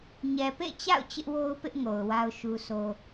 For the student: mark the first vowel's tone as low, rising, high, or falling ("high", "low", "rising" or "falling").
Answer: low